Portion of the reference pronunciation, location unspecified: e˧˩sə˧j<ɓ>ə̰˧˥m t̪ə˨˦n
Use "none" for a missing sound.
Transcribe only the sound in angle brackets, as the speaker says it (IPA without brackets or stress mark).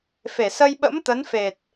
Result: ɓ